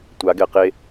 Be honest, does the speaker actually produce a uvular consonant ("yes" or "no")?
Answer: yes